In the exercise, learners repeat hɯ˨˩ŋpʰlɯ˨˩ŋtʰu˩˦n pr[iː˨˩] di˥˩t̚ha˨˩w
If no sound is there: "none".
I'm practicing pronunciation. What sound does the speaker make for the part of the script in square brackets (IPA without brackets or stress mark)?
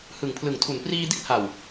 iː˧